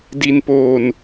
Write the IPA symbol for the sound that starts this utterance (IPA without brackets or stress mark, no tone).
d